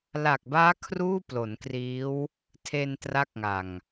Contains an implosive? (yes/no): no